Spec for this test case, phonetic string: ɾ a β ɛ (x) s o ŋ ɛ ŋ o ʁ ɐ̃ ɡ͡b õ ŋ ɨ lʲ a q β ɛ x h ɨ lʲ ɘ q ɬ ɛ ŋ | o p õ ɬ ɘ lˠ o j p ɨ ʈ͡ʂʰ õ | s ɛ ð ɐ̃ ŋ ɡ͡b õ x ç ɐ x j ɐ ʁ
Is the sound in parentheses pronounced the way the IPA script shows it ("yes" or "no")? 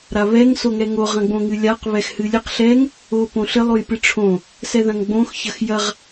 no